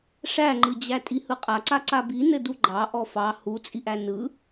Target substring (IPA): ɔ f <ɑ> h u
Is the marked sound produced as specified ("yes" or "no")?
yes